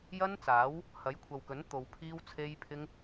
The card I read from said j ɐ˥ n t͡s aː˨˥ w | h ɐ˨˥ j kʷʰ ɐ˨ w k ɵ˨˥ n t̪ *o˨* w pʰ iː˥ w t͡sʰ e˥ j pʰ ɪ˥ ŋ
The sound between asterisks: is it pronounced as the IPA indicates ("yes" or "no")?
yes